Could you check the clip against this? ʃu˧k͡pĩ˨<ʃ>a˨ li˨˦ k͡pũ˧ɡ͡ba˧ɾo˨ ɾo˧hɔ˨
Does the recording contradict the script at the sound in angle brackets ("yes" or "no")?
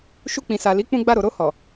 yes